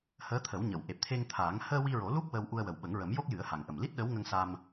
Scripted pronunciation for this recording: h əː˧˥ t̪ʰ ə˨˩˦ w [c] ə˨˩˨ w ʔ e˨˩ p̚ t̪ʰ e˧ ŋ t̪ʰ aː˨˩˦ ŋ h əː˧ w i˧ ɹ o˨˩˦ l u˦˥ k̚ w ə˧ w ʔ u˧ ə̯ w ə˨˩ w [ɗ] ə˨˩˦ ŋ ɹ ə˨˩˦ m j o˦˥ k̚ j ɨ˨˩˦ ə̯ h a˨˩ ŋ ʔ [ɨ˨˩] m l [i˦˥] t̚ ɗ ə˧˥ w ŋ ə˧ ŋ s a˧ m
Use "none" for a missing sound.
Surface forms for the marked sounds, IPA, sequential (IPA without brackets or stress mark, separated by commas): ɲ, ɓ, ə˨˩, i˦˥